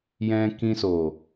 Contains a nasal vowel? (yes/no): yes